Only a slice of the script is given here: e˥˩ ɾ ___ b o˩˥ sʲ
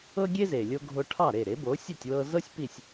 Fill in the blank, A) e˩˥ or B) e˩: A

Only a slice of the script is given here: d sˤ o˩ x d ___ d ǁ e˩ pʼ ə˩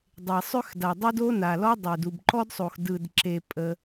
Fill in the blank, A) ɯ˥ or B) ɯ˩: B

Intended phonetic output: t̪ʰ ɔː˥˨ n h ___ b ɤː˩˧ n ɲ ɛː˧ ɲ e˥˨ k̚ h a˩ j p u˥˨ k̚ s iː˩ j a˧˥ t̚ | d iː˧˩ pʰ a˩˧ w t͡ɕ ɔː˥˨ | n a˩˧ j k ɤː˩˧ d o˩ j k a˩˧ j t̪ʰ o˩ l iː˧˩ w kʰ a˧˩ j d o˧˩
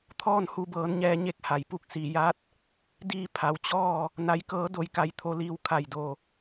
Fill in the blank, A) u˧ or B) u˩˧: A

